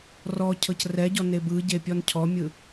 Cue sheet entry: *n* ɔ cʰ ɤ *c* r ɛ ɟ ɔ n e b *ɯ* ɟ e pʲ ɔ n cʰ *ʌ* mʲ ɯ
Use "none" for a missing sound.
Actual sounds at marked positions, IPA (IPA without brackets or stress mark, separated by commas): r, c, ɯ, ɔ